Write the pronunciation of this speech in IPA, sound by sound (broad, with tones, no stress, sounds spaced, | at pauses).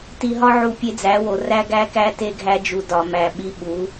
t i˨ ɦ ɒ˦ ʕ u˨ pʲ e˦ d͡z æ˨˦ w o˨ r æ˦ ɡ æ˦ k æ˦ t e˦ ɡʱ æ˦ d͡ʒ u˨ d ɒ˨ m æ˨ ɓ i˦ ɓ u˨˦